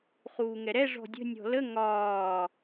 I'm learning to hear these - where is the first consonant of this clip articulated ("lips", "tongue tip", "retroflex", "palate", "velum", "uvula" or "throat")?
uvula